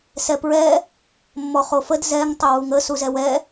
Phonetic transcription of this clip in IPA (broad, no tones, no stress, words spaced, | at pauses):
sɛpɹɛ | mːɔχofəd zɛŋ tˤɪwuŋə suzɛwɛ